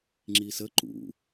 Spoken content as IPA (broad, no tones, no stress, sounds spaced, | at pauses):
ŋ͡ǁ i s ə ǃ ṵ